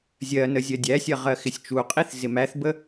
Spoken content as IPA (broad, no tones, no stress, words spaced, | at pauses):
zʲɜnə zʲɜdʲæsʲɜ ʁɜxɪsʲt͡ʃuqʼiθ zɪmæθbə